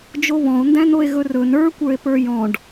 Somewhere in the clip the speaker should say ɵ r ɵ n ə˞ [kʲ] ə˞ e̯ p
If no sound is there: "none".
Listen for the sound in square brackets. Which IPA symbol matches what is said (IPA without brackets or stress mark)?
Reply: kʷ